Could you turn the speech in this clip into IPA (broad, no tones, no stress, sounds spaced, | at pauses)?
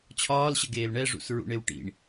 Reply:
t͡ɕʰ ɒː l ɕ ə ɡ eː l ɳ ɛ ʐ ṵ s ɹ ṵ ɳ e w ʈ ḭ ɳ